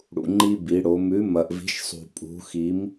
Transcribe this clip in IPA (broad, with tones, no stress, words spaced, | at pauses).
ɽṵ˨ŋ͡ǃi˦ bi˨˦ɽo˨˦ mʉ˨˦mɐ˨ʔvi̤˨˦ʃsˤṳ˨ pʼṳ˨˦xi˨˦m